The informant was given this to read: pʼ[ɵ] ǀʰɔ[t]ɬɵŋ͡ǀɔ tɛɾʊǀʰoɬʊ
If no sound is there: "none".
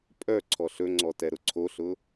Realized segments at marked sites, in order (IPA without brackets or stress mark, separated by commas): œ, none